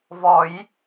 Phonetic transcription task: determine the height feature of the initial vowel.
mid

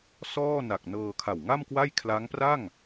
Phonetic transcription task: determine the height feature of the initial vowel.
mid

